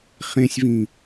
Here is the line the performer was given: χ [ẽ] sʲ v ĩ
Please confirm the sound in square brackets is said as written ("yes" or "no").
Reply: yes